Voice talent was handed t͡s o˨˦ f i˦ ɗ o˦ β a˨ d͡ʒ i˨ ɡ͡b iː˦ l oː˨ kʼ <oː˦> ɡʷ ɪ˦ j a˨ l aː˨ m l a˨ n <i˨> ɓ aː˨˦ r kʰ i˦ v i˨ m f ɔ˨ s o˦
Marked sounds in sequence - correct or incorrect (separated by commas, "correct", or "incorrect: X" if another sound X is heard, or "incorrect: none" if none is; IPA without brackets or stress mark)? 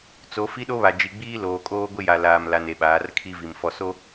correct, incorrect: e˨